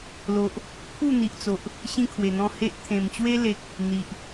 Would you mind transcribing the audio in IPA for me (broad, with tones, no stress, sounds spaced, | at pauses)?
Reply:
l o˨ ʔ | pʰ u˥˧ n̪ i˨ ʔ t͡s o˨ ʔ | ɕ ĩ˥˧ kʰ w e˨˩ n̪ ɔ̃˥˧ h e˦ ʔ t̪ʰ ẽ˨˩ m t͡ɕ w e˦ l e˨ k̚ | n̪ i˨ ʔ